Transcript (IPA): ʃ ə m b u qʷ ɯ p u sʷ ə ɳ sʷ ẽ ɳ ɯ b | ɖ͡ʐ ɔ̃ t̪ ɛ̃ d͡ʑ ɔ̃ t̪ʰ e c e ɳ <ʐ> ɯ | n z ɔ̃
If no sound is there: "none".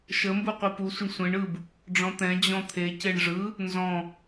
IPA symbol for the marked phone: ʐ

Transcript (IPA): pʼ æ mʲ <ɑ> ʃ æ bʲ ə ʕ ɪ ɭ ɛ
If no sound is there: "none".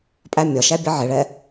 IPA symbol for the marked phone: ɒ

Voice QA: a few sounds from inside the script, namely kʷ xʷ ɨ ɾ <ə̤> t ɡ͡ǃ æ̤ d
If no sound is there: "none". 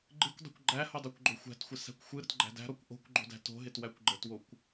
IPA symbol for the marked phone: ə̤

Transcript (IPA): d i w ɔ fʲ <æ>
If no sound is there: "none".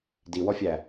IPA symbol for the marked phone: æ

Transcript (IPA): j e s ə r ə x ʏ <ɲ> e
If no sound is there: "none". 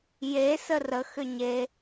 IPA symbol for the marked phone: ɲ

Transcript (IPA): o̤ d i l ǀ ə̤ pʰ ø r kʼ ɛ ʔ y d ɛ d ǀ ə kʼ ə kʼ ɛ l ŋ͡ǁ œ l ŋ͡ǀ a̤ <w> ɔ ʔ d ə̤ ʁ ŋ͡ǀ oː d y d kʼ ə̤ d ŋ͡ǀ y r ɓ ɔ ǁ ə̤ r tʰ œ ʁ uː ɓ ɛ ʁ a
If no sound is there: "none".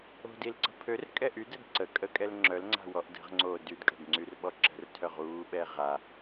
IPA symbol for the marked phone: w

